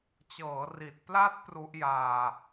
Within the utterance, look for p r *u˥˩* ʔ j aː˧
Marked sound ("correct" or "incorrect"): incorrect